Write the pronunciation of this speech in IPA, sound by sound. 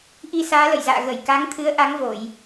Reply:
ʔ i˧ s aː˨˦ l ə̰˧˨ j z a̰ː˧˨ ɣ ə˧˩ j k a˨˦ ŋ t̪ʰ ɨ˨˦ ə̯ ʔ a˨˦ ŋ v o˧˩˨ j

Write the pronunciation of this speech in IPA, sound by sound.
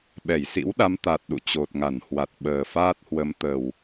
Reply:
ɓ ɛ˧˩ j s ḭ˧˥ w ɗ a˨˦ m t̪ a˨˩ t̚ ɗ ṵ˧˨ t͡ɕ o˨˩ t̚ ŋ a˧˩ n h w a˨˩ t̚ ɓ əː˨˩ f aː˦˥ t̚ h w ə˨˦ m t̪ ə˨˩ w

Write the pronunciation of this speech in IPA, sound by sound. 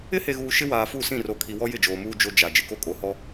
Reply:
ɪ˦ h e˨ ɣ uː˨ ʃ ɪ˦ w aː˨ f u˦˨ s ĩ˦˨ r o˨ kʰ i˨ w ɔ˦ j ɪ˦˨ d͡ʒ oː˨ m uː˦ d͡ʒ o˦ d͡ʒ a˨ d͡ʒ ɪ˨ k o˦ kʼ o˨ h ɔ˦

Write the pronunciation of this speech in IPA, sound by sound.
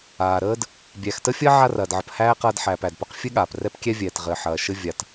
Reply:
aː˨ ɾ əː˥ d | bʲ æ˨ x t ə˥ fʲ ɐ˥ ʕ a˦ r ɐː˨ d ʕ ə˨ p h æː˥ q ɐː˦ d ħ æː˨ p æ˨ d p ɐ˦ q fʲ ɘ˥ ɠ aː˩ p r ɛ˥ p kʲ ɛ˥ vʲ ɛː˨ t ʁ ɘ˨ ħ ɐː˨ ʃ ɘ˥ vʲ a˨ t

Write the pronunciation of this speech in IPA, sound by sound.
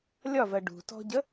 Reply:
lʲ ɒ v ɜ ɖ ṳ t ɔ̤ ɟ ə

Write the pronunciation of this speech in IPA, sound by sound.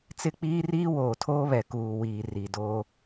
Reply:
t͡s ɪ˦ k͡p iː˦ r iː˦ w oː˨ tʰ oː˦ β ɛ˨ k uː˨ w iː˨ r i˨ d oː˦

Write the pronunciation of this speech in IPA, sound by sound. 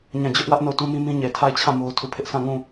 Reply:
ɲ ã˦˨ d͡ʑ ʊ˦ ʔ w ä˦ ʔ n o˦˨ ʊ̯ t ũ˦ m ĩ˦ m ĩ˦ ɲ e˨ tʰ a˦˨ ɪ̯ t͡ɕʰ ã˦˨ m o˦ ʊ̯ tʰ u˦˨ pʰ ɪ˦ ʔ sʰ ã˦˨ ŋ ũ˦˨

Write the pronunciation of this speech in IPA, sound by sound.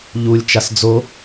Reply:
ʎ u lʲ t͡ʃ a s d͡z o

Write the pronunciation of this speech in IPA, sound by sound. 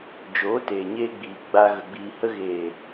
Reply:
d͡ʒ oː˨˦ t eː˨ ɲ eː˧ ɡ͡b iː˨ ɡ͡b a˨ ɣ ə˨ ɡ͡b iː˨ h ə˧ ɣ eː˨

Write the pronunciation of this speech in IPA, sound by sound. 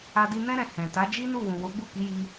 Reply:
a˧ d i˧ n ɛ̃˦ ɾ ɛ̃˧ h ɛ̃˨ t a˨˦ d͡ʒ i˦ n u˦˨ w ũ˨ w o˨˦ ɡ͡b u˦˨ k i˨˦ j i˧

